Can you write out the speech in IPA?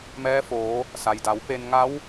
m ɛː˧˥ f oː˩˧ | s a˩ j d a˩˧ w p e˧ n ŋ a˧˥ w

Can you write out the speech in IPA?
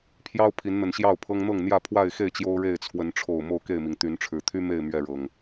pʰ j ɑ˦ ʊ̯ pʰ i˨˦ n n̪ ə˨˩ n ɕ j ɑ˥˨ ʊ̯ pʰ ɤ˦ ŋ n̪ ɤ˥˨ ŋ n̪ j ä˥˨ pʰ w a˥˨ ɪ̯ x e˥˨ ɪ̯ t͡ɕ j o˦ ʊ̯ ɻ e˥˨ ɪ̯ t͡sʰ w ə˨˦ n ʈ͡ʂʰ o˨˩ ʊ̯ m o˥˨ ʊ̯ k e˥˨ ɪ̯ m i˩ ŋ t̪ y˨˦ n ʈ͡ʂʰ ɻ̩˨˩ t̪ʰ y˦ m e˥˨ ɪ̯ m ɥ ɛ˥˨ ɻ ɤ˨˩ ŋ

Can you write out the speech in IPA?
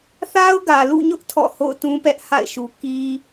θ a˦ ʊ̯ ɡ ä˨ l ṵ˦˨ ɲ ʊ˦ ʔ tʰ ɔ̰˦˨ h o̰˦˨ ʊ̯ t ũ˦ p ɛ˦ ʔ h a̰˦˨ ɪ̯ ʃ u˨ k i˦

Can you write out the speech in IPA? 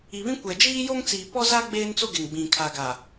i˨ β ĩ˦ kʷ ɛ˨ d͡ʒ iː˦ j o˦ ŋ t͡s iː˨ p ɔ˦ z a˦ ɡ͡b eː˦ n t͡s o˦ ɡ ɪ˨ ŋ ɡ͡b ĩ˨ kʰ a˨ ɡ a˨

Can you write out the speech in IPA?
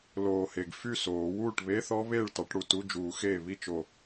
l oː˨˩ h e˨˩ ɡ f y˥˩ s oː˨˩˦ w uː˥˩ ʈ β e˧˥˧ θ ɔ˦˥ β eː˥˩ ɭ t ɑ˨˩˦ ʈ ɽ u˨˩ t u˧˥˧ d͡ʒ uː˨˩˦ x eː˥˩ β i˥˩ t͡ʃ o˨˩

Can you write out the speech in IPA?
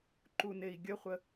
ǃ u n e i̯ ɡʲ ə χʷ ə

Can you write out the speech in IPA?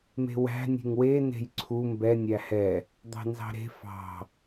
m e̤ w æ̤ nʲ e̤ ŋ w e n e̤ j ǀʰ u m b ɛ nʲ æ h ɛ | d̪ ɑ̤ n z ɑ̤ ɾ e̤ f ɑ̤

